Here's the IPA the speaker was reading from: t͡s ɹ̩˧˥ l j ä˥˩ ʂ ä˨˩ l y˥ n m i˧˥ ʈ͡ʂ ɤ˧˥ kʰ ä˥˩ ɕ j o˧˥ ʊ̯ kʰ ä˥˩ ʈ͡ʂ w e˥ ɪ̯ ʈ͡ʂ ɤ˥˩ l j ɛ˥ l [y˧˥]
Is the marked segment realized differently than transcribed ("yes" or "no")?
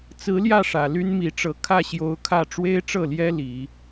yes